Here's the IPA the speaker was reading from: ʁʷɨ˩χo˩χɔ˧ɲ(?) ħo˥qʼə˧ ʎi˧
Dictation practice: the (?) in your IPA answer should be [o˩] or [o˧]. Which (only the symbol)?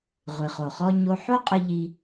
o˧